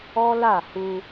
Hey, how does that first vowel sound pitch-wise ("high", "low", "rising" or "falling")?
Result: high